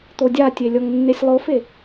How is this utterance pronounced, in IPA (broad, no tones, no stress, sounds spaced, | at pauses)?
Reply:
t̪ o dʲ a tʲ e lʲ ɔ ŋ nː e sʲ lˠ o f e